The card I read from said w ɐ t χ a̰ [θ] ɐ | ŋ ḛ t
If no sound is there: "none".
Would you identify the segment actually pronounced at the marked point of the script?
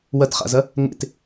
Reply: z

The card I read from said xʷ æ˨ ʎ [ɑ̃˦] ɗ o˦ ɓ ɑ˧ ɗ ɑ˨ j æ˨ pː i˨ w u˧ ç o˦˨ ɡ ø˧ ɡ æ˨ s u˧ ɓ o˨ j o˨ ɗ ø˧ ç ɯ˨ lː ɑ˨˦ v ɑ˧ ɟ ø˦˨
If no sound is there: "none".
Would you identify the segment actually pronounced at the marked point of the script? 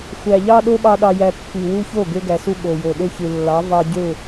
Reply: ɑ˦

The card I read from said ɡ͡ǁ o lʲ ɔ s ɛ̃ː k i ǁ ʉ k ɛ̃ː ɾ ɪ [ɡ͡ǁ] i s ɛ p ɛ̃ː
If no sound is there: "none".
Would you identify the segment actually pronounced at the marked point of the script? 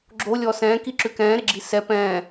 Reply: ɡ͡ǁ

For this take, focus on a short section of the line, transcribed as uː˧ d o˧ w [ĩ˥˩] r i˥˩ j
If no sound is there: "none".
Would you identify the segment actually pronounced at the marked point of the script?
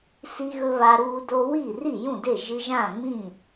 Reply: i˥˩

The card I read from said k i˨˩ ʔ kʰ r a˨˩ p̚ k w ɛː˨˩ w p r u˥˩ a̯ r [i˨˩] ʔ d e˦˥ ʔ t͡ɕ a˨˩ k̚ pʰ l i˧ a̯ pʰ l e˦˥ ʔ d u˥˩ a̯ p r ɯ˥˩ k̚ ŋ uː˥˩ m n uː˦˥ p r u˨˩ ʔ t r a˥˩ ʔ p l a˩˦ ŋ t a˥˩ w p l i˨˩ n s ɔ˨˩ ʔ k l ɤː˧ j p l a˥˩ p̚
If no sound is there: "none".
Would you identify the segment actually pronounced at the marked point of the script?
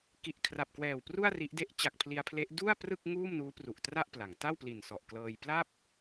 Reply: i˦˥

